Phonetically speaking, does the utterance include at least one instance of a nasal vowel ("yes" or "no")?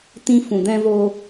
yes